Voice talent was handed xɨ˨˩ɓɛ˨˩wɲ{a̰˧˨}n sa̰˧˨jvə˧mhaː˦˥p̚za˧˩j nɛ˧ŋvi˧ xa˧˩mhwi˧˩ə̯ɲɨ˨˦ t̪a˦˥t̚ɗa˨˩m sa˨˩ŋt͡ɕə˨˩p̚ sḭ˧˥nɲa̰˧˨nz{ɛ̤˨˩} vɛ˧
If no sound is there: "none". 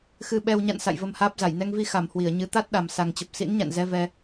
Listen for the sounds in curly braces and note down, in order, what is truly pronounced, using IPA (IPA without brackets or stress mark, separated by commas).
a̰˧˨, ɛ˧